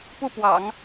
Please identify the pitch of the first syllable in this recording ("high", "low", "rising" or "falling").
falling